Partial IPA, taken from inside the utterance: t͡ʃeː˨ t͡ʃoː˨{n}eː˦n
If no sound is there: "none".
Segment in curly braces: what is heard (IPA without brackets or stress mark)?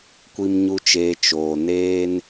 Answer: n